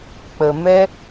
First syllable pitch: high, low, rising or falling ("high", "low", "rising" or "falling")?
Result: low